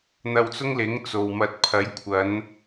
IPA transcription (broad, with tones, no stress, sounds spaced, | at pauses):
n̪ ɐ˧ w t͡s ʊ˥ ŋ l ɪ˨˥ ŋ t͡s o˨ w m ɐ˧ t̚ pʰ ɐ˨˥ j kʷʰ ɐ˨˧ n